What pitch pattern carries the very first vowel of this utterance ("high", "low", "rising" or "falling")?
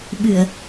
low